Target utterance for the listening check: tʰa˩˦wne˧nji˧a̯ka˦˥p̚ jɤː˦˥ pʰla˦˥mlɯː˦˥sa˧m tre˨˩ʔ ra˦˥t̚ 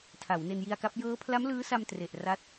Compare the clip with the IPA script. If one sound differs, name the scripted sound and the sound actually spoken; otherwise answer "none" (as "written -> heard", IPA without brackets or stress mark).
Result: none